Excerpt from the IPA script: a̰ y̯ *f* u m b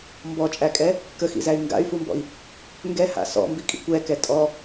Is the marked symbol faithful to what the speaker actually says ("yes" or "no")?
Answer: yes